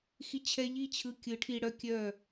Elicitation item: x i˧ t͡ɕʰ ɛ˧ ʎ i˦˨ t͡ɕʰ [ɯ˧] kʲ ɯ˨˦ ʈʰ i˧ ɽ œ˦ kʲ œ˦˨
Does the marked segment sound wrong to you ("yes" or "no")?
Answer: no